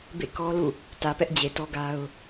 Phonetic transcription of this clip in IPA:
b ḛ˦˨ k ɔ˦ l ṵ˦˨ | t ä˨ p ɛ˦ ʔ d͡ʑ e˨ t ɔ˦ ɡ a˦ ʊ̯

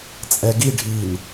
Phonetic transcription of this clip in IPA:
t͡sʼ ɛ ɡ i ɖʱ i n

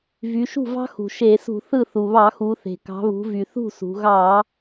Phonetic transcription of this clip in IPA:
v y˩˧ ʃ ṳ˥˩ v ɑ̤˥ x ṳ˩ ʃ e˧˩˧ s ṳ˧˩˧ θ ɯ˥˩ θ u˩ β ɑ˧˩˧ x u˩˧ θ e̤˩ k ɑ̤˩˧ β ṳ˩˧ v y˩ θ ṳ˥˩ s ṳ˩˧ ɣ ɑ˧˩˧

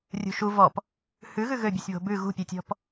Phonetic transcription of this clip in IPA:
rʲ ṳ ʃ u v ɔ p | h ʉ ɣ ʉ ɣ ø bʲ ɨ sʲ β o̤ b ʉ ɣ ṳ pʲ ɨ tʲ ɔ̤ p

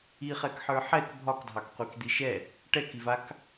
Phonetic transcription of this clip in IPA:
i χ ɛ k ħ ə˞ ħ ɛ k bʱ ɒ k dʱ ɑ k qʷ i k d̪ i ʃ ɛ | ʈ ɛ k i v a k

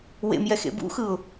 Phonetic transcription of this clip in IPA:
w ḛ m j ɛ x ḛ b ṵ x ɯ ʊ̯

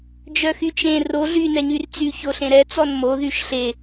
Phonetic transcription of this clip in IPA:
d͡ʒ œ x y t͡ʃ ẽ r o ɮ y n ɛ ɲ y r t͡s y ç o ɬ ẽ ɾ ɛ t͡s ɔ n m o ð y ʃ ɬ e

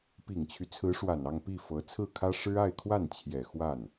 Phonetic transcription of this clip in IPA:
p i˨˩ ŋ t͡ɕʰ y˦ t͡sʰ ɹ̩˧˥ ʂ w a˨˩ n ɑ˥˧ ŋ p i˥˩ f ɤ˧˥ t͡sʰ ɹ̩˥˩ kʰ ä˥ ʂ ɻ̩˥ a˥˧ ɪ̯ kʰ w a˥˩ n t͡ɕʰ j ɛ˨˩ x w a˥˩ n

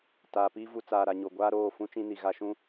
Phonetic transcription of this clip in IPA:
t aː˨ p i˦ v u˨ t͡s aː˨ ɾ a˨ ɲ o˨ ɡʷ aː˦ ɾ oː˦˨ f ũ˦ t͡ʃ ĩ˦ n i˨ ɣ a˦ ʃ ũ˦

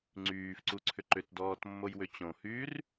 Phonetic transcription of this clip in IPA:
ŋ͡ǀ yː f ǀ u ǀʰ ʏ ǃ ʏ t d ɔː t mː o j w ʏ t͡ɕ õ h yː r

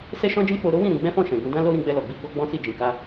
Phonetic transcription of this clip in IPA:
s ɛ˦ ʃ ɔ̃˦ d͡ʒ ĩ˦ k͡p o˧ ɾ o˦ w ĩ˦˨ ɾ ũ˧ ɡ͡b ɛ̃˦ f ɔ̃˦˨ ʃ ɛ̃˨ ɡ ũ˧ d ã˦ l o˦ ɾ ĩ˧ ɡ͡b ɛ˧ l ɔ˨ ɡ͡b i˧ ɡ͡b ɔ˦ ɡ͡b ɔ̃˦ s i˦˨ d͡ʒ ĩ˨ k a˧

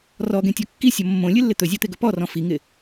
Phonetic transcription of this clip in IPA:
r ɔ ɡ ẽ tʲ ɔ kː i sʲ ɔ mː õ lʲ ɨ lː ɪ t̪ ɵ zʲ ɔ t̪ e ɡ ɵ p ɔ r ɔ̃ f i ŋ ɪ

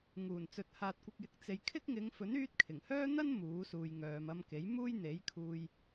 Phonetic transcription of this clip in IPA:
ŋ uː˨˩ n t͡s ɵ˨˥ t̚ h aː˨ t̚ kʷ ɪ˨ k̚ j ɪ˨ k̚ t͡s e˨ j kʰ ɪ˥ k̚ ŋ ɪ˨˧ ŋ f ɵ˨˥ n yː˧ t̚ kʰ ɪ˨˩ ŋ h œː˥ n̪ ɐ˥ n m uː˨˥ s uː˨ j ŋ œː˨ m ɐ˧ m k e˨˥ j m uː˥ j n̪ e˨˥ j kʰ uː˧ j

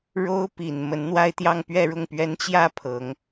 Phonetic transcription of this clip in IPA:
ɻ o˥ ʊ̯ p i˨˩ n m ə˧˥ n n̪ w a˥˧ ɪ̯ t̪ j ɑ˥˧ ŋ p ɥ ɛ˥˧ ɻ ʊ˥˩ ŋ p ɥ ɛ˥ n t͡ɕ j ä˥˩ pʰ ɤ˧˥ ŋ

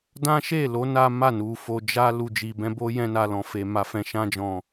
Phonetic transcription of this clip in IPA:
d ã˦ ʃ e˦˨ l o˨˦ n a˦ m a˦˨ n u˨ f o˨ d͡ʒ a˧ l u˨ d͡ʒ i˨ b ɛ̃˧ b o˦ j ɛ̃˧ n a˨ l ɔ̃˨ f e˨ m a˨ f ɛ̃˨ ʃ ã˧ d͡ʒ ɔ̃˨

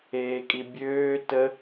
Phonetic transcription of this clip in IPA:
eː kʼ i bʲ øː t ə

